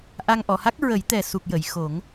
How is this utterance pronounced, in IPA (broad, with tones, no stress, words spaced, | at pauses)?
ʔa˧ŋ ʔɔ˨˩˨ha˦˥k̚ ɹə˨˩˦jt̪ɛ˨˩su˨˩k̚ jə˨˩˨j xo˨˩˦ŋ